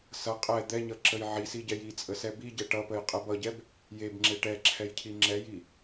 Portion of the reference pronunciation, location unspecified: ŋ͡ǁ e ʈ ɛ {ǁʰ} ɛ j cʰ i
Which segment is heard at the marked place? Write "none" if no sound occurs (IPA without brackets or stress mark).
ǁʰ